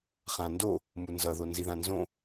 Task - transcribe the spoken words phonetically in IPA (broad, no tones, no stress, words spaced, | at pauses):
χãndo | munzʌ ðonziðãnzõ